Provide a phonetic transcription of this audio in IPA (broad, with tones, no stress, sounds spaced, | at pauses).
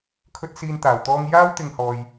kʰ ɵ˥ t̚ s iː˥ n t̪ aː˧ w t̪ ɔː˥ ŋ j aː˥ w t̪ ɪ˧ ŋ h ɔː˧ j